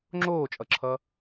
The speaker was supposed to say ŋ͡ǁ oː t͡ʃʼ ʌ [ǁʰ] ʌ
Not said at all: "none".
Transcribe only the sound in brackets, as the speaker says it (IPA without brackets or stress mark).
ǁʰ